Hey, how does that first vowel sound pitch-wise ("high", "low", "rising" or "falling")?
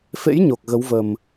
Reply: rising